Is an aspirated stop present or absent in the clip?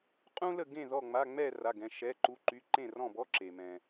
absent